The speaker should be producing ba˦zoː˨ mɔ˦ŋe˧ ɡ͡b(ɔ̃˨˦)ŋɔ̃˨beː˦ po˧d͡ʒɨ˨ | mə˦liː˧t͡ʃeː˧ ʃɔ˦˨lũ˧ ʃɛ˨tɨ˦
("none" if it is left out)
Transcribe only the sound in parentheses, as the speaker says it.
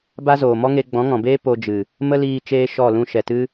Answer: ɔ̃˨˦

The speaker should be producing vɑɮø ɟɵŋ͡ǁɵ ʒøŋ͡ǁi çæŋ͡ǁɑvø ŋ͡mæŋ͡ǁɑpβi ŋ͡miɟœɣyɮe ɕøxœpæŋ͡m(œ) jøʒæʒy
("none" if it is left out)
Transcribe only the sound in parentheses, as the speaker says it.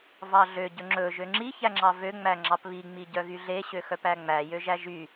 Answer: æ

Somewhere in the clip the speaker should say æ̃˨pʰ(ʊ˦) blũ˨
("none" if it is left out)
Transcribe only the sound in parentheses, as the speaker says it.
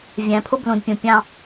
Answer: ʊ˦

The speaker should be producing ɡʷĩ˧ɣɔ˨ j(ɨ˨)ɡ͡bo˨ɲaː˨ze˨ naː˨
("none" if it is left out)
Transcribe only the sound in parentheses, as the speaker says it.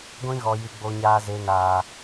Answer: ɨ˨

